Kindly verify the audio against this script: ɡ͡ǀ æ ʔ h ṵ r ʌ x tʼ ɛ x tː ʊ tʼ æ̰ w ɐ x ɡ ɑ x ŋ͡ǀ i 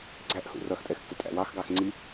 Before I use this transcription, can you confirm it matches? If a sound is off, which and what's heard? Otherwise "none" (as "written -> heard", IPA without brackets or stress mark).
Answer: ɐ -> ɑ